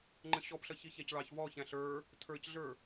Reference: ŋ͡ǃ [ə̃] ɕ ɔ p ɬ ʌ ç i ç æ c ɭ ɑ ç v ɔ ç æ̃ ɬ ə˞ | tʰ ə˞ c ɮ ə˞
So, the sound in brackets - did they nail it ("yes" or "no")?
yes